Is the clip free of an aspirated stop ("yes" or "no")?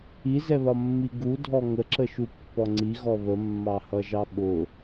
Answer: yes